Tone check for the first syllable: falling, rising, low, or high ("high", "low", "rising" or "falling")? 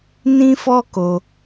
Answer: high